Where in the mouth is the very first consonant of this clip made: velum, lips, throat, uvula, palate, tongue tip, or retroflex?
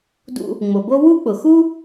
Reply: tongue tip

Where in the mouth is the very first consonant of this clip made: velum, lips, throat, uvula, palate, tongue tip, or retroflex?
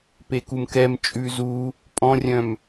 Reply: lips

